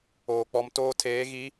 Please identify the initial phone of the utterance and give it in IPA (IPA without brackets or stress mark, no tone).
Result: oː